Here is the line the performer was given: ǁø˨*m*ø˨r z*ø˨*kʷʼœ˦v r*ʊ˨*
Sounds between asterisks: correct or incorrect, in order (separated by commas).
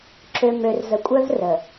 correct, incorrect, incorrect